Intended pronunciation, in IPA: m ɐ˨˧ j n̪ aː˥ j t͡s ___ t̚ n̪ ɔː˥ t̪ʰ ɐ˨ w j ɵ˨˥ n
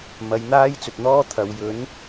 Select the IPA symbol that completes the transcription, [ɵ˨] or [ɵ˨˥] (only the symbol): ɵ˨